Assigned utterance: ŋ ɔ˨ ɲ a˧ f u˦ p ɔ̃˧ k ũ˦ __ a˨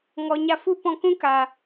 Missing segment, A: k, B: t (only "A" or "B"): A